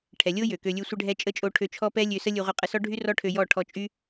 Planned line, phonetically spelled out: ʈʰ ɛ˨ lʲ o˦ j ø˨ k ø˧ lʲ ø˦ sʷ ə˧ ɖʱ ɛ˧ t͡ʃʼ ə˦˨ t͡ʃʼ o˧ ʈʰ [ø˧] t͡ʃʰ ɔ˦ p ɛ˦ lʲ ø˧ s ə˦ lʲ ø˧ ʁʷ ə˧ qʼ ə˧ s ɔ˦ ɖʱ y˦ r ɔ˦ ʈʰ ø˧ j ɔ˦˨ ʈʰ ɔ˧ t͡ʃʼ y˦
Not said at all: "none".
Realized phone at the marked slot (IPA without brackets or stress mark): ø˧